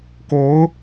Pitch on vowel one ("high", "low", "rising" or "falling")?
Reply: rising